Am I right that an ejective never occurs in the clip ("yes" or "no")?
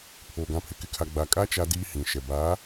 no